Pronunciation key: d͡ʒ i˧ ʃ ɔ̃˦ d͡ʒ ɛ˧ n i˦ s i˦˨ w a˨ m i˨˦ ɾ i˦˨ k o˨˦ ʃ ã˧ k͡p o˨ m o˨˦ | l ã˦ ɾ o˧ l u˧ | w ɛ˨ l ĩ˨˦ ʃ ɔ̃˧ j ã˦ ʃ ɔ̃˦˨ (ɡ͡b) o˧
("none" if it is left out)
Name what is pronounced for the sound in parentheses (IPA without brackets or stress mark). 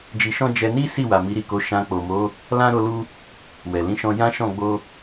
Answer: ɡ͡b